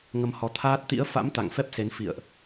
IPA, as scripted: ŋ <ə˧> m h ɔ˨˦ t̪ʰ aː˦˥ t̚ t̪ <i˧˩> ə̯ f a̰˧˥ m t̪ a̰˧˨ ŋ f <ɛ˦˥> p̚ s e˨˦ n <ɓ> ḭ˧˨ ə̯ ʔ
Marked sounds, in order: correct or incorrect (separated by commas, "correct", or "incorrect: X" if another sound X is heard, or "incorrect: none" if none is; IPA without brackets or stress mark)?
correct, incorrect: ḭ˧˥, correct, incorrect: f